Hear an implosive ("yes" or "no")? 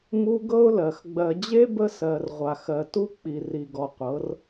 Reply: no